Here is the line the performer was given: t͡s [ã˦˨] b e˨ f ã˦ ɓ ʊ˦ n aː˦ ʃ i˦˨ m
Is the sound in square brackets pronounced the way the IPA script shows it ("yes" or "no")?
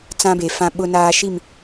no